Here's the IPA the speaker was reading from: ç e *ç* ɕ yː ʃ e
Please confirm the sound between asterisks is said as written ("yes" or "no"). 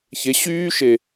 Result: no